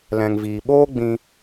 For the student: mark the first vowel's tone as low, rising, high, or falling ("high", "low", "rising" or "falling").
low